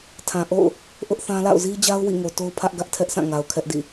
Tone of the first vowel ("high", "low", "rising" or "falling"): low